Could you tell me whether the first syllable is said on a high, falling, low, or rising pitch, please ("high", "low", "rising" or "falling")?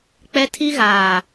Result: high